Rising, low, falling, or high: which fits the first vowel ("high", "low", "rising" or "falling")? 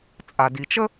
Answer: low